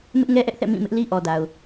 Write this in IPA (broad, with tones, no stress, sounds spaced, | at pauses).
m ɪ˦ ʔ ŋ ɛ˦ ʔ ɛ˦ ʔ θ ɛ̰˦˨ m ĩ˦˨ m ɪ˦ ʔ l i˦ ʔ ɔ˨ d a˨ ʊ̯